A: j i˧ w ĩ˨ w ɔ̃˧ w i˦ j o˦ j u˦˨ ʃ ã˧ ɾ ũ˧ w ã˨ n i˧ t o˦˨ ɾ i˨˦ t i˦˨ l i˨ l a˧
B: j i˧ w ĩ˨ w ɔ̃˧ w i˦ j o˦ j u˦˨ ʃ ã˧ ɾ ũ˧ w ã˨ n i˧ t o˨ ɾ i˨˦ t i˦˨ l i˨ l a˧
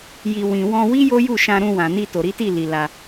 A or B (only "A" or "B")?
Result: B